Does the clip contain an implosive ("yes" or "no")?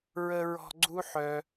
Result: no